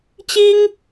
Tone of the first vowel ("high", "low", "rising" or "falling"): high